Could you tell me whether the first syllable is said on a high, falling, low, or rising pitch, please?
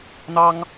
high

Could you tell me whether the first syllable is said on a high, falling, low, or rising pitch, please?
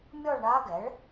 falling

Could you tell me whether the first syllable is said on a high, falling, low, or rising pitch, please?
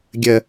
low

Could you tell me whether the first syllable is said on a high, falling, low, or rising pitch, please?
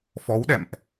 rising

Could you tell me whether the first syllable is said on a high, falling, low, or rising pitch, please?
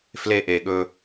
high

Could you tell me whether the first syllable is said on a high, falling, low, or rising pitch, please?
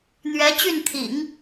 rising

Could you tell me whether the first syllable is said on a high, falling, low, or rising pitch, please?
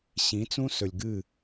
rising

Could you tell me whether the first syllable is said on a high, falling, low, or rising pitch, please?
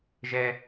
high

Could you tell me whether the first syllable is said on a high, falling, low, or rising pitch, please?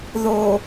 low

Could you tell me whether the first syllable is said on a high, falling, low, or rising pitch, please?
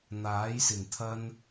rising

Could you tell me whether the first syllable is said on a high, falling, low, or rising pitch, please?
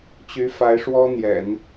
rising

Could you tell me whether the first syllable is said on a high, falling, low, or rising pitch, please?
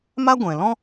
high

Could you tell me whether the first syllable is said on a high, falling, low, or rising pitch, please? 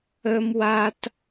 high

